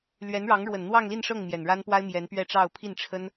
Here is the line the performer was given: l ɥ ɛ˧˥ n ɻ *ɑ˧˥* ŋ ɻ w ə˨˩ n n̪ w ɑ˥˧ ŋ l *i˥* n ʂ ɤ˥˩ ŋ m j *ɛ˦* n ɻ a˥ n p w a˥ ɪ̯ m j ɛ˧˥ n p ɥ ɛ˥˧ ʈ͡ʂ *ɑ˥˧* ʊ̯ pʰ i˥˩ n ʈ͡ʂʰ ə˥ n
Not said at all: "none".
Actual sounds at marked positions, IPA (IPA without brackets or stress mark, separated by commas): ɑ˧˥, i˥˧, ɛ˨˩, ɑ˥˧